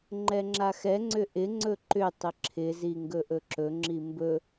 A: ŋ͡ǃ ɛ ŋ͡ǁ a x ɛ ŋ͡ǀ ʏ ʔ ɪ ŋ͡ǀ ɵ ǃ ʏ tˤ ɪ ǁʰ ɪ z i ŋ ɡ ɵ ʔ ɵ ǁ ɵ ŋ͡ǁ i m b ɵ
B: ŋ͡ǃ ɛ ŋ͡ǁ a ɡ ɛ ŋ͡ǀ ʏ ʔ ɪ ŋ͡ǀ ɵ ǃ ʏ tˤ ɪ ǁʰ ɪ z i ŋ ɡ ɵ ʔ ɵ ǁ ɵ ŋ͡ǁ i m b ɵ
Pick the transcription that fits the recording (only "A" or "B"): A